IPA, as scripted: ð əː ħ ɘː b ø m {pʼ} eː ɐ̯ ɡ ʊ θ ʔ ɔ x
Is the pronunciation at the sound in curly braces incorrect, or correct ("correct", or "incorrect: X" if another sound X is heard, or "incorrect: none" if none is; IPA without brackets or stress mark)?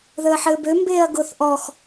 incorrect: b